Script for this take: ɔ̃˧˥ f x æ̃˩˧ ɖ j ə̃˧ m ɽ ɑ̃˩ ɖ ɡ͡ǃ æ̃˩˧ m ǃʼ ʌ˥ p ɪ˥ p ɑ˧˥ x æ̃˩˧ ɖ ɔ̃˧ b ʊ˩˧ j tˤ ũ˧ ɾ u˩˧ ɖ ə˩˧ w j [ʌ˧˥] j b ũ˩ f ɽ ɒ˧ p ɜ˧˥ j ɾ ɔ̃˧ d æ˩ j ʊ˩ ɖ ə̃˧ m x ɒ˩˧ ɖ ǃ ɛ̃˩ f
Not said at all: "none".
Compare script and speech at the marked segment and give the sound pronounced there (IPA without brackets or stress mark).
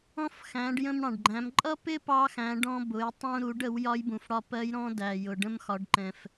ɒ˧˥